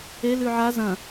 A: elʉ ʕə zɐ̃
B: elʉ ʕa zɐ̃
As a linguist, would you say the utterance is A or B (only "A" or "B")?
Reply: B